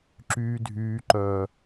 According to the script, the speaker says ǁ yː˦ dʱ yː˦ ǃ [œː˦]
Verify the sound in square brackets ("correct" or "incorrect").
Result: correct